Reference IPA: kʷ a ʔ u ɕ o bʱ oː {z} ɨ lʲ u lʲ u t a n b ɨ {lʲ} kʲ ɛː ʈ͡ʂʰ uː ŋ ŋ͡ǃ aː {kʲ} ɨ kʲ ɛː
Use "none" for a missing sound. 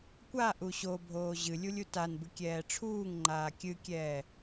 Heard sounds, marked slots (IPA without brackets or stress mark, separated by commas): ʑ, none, kʲ